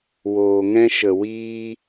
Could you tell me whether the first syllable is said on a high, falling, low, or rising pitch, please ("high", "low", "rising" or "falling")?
low